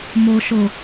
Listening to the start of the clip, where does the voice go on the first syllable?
low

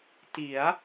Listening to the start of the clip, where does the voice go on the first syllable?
rising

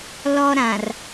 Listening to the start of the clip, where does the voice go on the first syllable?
high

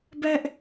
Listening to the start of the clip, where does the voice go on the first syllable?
high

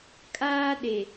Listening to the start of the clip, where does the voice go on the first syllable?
high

